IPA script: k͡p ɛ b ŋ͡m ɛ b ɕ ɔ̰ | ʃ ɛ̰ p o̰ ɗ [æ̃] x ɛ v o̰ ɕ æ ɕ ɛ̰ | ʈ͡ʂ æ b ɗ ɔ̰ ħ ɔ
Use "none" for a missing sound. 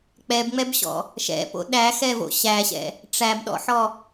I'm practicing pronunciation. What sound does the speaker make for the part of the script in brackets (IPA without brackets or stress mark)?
æ